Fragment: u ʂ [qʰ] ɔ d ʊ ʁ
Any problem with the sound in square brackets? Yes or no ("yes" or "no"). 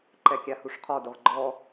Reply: no